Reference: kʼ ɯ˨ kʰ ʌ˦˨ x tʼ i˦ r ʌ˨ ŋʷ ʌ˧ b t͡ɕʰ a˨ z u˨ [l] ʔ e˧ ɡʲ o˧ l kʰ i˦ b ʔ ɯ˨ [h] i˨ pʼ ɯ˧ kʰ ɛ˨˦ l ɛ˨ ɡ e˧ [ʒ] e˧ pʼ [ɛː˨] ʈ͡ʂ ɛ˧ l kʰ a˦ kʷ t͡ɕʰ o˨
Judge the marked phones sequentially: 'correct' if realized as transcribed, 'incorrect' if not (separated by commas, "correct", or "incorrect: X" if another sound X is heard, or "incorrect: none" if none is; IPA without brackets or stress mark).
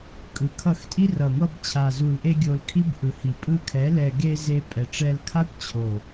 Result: correct, correct, incorrect: z, incorrect: ɛ˨